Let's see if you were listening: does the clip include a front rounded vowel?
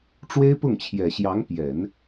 no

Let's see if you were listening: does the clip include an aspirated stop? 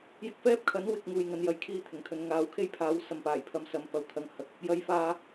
yes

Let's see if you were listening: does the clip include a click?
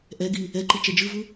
yes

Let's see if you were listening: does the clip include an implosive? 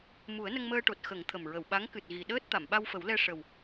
yes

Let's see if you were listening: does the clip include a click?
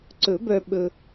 yes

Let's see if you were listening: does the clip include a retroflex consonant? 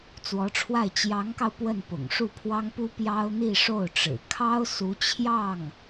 yes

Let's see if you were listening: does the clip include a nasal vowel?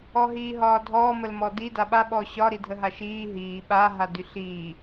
no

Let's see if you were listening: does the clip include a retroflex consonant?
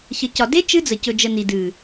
no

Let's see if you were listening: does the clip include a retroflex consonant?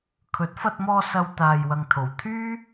no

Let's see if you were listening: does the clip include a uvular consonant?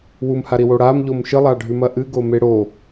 no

